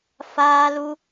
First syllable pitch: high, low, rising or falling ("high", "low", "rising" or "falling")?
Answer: high